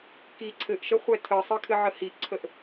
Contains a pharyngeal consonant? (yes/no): yes